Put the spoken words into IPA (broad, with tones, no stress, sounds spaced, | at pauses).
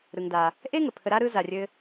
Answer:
ɾ ɯ˧ ŋ d a˧ | ʔ e˥ ŋ ə˩ pʰ ə˧ ɾ a˥ ɾ ɯ˥ z a˧ rʲ ɘ˥